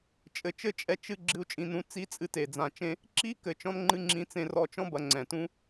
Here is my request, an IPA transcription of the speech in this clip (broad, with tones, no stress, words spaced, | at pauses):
t͡ʃʼɘ˨˩t͡ʃɘ˦˥t͡ʃʼɛ˧ t͡ʃɨ˧ ɡ͡ǁɨ˧u̯t͡ʃʼĩ˧nũ˧ t͡si˦˥t͡sʼɨ˧te˨˩ d͡zã˨˩t͡ʃẽ˧ | ǁi˦˥kɘ˨˩t͡ʃɔ̃˧nŋ͡ǃɨ˧ ŋ͡ǁĩ˧t͡sẽ˧rɔ˧t͡ʃɔ̃˦˥ bɐ˧ŋ͡ǀɛ̃˨˩tũ˦˥